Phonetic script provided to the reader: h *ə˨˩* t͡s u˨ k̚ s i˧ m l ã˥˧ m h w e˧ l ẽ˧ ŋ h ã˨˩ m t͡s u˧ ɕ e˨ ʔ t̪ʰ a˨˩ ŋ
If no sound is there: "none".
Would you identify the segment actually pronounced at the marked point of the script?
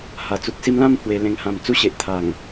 a˨˩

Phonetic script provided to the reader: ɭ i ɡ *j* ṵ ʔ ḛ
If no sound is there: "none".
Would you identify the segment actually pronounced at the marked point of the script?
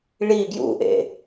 j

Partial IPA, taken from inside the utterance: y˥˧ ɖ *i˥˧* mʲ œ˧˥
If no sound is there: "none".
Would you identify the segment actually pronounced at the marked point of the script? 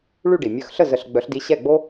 i˩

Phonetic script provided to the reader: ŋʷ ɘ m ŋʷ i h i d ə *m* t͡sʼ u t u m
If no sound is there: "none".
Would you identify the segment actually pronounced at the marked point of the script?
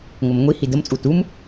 m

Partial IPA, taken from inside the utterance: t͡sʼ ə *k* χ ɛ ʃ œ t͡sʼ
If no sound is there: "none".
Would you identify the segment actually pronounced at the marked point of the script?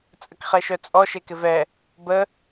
k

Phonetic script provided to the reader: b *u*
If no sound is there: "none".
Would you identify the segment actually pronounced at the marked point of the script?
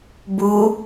u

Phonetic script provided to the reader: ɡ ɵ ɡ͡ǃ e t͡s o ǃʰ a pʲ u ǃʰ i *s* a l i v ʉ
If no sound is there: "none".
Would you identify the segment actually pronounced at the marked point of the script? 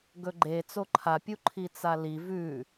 t͡s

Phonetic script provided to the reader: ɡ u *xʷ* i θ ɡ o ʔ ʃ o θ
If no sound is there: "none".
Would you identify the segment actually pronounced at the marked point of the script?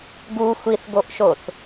xʷ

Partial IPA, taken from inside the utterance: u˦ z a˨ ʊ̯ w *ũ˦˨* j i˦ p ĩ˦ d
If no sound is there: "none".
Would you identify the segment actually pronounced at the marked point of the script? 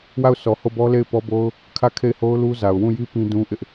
ũ˦˨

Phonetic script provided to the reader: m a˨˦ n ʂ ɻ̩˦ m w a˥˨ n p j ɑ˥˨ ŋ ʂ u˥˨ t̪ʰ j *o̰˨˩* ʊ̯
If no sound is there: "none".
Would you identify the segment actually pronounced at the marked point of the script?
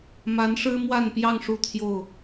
o˥˨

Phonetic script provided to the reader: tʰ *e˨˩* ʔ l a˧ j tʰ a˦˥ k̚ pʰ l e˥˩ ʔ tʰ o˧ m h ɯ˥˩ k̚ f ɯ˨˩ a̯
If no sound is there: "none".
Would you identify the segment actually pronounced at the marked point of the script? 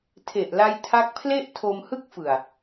e˨˩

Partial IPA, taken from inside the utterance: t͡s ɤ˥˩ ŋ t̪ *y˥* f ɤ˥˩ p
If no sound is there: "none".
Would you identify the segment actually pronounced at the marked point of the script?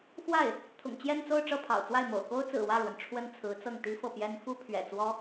i˥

